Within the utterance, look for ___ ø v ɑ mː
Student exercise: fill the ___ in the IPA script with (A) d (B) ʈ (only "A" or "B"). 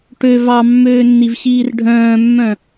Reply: B